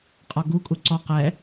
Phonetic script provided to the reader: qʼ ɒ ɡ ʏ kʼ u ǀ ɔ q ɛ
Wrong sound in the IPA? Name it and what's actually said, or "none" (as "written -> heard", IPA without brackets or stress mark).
ʏ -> u